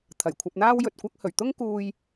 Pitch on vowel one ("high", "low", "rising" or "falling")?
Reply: low